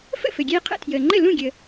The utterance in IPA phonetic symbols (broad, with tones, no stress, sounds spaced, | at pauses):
f ə̰˥˩ f ɘ˩ ɡʲ eː˧ qʰ ə̰˥˩ tʰ j əː˩ ŋ͡ǃ ɘ˥˩ l ũ˥˩ ɡʲ ə˩